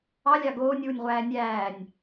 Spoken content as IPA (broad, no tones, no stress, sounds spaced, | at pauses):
ɑ lʲ ɑ ɡ oː nʲ w u nʲ ʁʷ æː nʲ æː nʲ